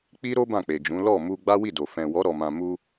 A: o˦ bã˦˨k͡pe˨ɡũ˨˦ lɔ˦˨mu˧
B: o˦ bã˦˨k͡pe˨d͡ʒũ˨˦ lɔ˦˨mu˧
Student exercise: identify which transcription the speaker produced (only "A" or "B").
B